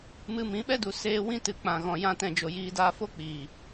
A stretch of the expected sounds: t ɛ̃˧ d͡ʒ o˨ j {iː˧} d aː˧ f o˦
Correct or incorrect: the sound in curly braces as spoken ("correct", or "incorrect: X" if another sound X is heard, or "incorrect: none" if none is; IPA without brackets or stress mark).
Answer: correct